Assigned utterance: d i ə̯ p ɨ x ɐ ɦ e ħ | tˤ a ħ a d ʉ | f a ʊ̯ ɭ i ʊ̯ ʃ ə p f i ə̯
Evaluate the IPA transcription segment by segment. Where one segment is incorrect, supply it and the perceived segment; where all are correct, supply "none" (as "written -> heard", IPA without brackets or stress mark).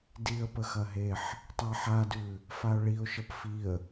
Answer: ɨ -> ə